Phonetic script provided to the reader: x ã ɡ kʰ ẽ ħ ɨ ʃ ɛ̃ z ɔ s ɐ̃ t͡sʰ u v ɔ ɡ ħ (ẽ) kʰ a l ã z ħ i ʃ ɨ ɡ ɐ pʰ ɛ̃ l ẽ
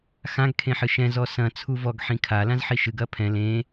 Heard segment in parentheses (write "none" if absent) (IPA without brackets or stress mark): ĩ